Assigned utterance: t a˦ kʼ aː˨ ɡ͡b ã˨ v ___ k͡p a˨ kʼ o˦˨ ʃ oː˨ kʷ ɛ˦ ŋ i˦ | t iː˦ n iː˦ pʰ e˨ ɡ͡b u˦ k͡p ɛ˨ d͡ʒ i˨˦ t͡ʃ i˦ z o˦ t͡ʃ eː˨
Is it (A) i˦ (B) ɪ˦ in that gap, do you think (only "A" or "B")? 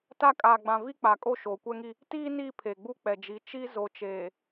A